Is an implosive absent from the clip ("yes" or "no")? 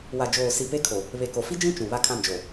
yes